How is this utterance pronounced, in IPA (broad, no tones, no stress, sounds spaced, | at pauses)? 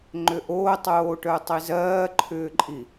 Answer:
ŋ͡ǃ ʏ ʔ o tˤ oː ʈ œ tˤ i z ɜː ǃʰ ʏː ǃʼ i